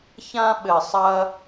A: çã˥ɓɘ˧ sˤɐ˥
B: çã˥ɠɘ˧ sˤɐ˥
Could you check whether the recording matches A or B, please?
A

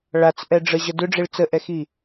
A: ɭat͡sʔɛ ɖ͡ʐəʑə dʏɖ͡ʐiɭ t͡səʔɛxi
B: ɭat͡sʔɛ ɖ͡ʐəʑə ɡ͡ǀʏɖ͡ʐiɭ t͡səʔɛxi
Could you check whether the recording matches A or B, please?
A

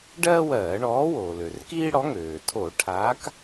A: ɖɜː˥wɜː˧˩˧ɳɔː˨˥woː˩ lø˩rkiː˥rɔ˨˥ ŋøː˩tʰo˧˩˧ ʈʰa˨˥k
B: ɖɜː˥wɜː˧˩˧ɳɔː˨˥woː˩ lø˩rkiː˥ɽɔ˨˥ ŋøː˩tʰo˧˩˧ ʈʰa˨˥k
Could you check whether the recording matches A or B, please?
B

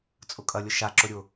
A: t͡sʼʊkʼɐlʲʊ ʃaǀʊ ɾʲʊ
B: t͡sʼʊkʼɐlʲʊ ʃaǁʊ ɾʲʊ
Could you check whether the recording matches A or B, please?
B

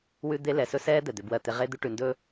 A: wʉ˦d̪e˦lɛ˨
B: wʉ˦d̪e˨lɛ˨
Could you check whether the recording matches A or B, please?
A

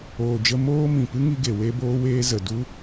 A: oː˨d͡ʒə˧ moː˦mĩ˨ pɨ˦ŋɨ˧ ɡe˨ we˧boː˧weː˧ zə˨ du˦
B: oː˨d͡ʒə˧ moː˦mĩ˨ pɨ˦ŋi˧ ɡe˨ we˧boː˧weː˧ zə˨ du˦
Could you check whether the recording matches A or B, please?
B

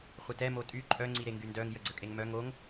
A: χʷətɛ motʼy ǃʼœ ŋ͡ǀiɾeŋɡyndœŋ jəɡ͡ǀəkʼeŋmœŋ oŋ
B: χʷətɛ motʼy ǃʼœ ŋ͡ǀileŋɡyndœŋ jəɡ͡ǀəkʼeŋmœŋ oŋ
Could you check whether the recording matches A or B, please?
A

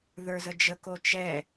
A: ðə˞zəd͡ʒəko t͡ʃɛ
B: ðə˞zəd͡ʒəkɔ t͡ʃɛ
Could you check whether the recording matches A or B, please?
A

